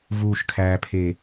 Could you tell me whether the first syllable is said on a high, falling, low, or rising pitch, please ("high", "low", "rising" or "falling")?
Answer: low